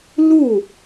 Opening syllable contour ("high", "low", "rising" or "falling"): falling